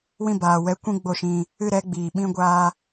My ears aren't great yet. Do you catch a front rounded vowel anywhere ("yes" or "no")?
no